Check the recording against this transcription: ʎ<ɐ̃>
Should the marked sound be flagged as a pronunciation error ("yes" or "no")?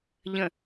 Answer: yes